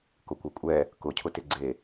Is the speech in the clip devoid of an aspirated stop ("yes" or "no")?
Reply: no